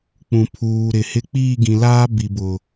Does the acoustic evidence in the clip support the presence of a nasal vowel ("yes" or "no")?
yes